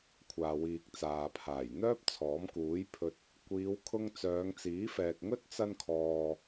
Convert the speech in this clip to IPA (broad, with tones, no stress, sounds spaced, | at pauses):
kʷʰ aː˨ w iː˨ k̚ t͡s aː˨ pʰ aː˨˩ j n̪ œː˥ p̚ t͡sʰ ɔː˨˥ m k uː˨˥ j pʰ ɵ˨ t̚ | kʷ iː˨˧ w kʰ ʊ˧ ŋ t͡s œː˨˧ ŋ t͡s iː˨˥ f ɛː˨ k̚ ŋ ɵ˥ t̚ t͡s ɐ˧ n kʰ ɔː˨